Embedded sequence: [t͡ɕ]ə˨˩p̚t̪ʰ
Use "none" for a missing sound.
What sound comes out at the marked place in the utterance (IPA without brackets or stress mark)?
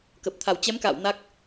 k